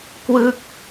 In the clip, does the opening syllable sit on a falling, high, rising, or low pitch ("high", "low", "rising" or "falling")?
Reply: falling